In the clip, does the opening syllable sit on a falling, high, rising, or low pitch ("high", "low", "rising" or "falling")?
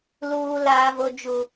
high